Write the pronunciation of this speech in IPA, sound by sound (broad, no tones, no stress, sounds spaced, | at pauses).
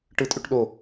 ʈ ɯ tʼ y ʈ ɗ o